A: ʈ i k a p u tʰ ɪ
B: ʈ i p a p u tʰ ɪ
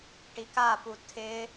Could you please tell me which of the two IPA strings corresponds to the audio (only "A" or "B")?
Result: A